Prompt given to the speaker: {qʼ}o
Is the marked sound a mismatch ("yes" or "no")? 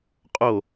no